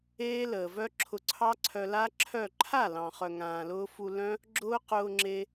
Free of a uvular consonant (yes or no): no